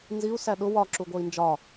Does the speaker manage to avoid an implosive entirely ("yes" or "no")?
no